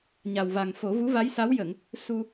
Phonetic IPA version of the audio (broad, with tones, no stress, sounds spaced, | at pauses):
ɲ a˨˩ w v a˨˩ ŋ f o˨˩˦ v u˧˥ v a˧˥ j s a˧˥ w j ə˨˩˨ ŋ | s u˧